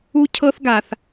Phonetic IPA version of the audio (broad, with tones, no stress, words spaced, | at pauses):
u˥cʰɤ˥θɡa˧θ